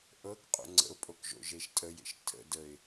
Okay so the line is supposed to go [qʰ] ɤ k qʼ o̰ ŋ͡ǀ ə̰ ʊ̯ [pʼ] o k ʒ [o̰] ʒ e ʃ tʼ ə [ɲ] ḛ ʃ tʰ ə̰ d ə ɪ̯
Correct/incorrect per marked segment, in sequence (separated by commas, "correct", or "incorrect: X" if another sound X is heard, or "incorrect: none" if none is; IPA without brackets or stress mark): incorrect: ʔ, correct, correct, incorrect: j